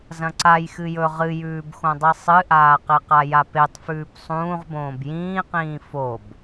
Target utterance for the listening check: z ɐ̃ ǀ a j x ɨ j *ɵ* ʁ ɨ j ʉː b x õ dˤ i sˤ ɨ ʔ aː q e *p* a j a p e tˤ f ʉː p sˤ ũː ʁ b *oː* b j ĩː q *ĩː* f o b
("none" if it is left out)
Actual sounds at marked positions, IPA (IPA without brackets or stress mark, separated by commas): ɵ, q, õː, ĩː